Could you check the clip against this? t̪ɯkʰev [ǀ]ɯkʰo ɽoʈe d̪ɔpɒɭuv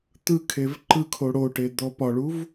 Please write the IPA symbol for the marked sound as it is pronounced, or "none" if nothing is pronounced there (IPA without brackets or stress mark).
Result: ǃ